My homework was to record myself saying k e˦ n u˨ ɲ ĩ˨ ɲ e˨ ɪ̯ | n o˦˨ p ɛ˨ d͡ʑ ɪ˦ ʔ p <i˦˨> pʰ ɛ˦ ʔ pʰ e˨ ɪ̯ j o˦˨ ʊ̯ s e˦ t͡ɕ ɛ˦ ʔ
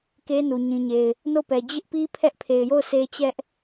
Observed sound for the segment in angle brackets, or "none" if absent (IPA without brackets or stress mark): i˦